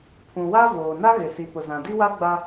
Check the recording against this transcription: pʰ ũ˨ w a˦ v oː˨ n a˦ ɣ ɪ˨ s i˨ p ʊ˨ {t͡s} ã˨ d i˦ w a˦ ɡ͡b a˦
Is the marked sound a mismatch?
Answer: yes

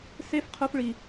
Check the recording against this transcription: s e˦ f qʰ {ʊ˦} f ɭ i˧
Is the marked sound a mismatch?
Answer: no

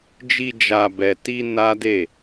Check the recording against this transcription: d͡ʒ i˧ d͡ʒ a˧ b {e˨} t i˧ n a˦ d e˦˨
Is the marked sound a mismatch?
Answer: yes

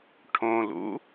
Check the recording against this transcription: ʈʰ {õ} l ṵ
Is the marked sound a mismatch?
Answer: no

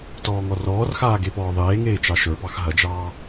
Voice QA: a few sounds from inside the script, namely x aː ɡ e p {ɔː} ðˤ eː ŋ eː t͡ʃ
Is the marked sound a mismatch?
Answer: no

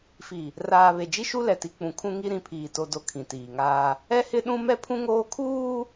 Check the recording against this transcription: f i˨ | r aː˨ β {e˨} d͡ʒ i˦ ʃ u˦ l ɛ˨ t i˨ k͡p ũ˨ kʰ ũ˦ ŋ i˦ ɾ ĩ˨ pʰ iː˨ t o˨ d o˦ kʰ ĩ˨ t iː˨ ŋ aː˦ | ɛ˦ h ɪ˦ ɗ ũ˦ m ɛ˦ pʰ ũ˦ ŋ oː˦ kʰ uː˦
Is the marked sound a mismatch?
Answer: no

